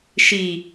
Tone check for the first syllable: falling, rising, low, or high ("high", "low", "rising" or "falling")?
low